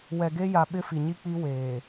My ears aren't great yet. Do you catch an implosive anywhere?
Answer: yes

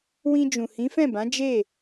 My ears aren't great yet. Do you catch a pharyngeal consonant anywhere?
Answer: no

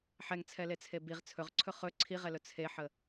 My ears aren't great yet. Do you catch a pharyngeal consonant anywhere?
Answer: yes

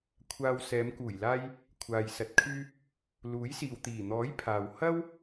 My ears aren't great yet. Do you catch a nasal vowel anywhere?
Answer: no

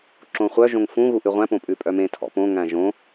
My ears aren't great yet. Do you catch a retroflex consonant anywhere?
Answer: no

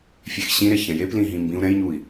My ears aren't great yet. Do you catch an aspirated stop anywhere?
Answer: no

